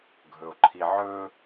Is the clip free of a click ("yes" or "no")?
no